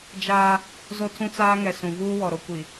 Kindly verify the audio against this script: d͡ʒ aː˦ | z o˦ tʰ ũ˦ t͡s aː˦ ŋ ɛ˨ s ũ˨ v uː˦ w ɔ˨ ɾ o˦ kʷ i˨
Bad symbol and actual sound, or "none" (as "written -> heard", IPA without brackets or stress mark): none